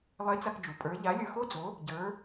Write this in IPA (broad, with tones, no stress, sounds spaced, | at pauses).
lˠ e˧˥ t͡s a˧ k d͡ʒ u˩ pʼ ə˞˧˥ ʎ a˧˥ lʲ ə˞˧ x o˥ d͡z o˧˥ | ɟ ə˞˧˥